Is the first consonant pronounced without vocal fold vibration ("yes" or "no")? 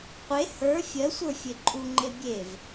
yes